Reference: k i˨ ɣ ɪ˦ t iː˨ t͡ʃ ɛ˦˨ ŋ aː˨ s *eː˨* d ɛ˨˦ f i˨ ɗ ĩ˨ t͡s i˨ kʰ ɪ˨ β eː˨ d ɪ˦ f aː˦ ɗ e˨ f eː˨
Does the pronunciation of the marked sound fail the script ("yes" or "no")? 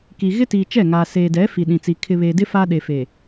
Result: no